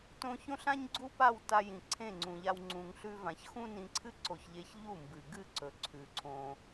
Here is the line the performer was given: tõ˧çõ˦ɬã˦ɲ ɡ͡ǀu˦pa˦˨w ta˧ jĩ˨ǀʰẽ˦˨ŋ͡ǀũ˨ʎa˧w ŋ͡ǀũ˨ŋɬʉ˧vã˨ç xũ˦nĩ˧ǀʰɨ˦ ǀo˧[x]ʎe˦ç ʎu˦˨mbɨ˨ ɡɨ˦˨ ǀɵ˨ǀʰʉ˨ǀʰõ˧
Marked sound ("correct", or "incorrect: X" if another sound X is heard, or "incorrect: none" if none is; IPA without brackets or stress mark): incorrect: ç